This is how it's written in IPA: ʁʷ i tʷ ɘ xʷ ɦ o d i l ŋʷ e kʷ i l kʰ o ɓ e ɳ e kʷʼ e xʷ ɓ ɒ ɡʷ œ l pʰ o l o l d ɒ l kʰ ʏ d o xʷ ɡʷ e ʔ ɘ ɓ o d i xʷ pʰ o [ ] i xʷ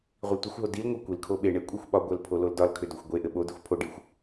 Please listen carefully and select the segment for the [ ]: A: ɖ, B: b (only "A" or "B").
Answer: A